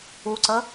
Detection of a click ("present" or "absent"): present